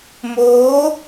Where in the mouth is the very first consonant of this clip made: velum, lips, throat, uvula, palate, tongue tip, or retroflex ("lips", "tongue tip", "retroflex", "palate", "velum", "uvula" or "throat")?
lips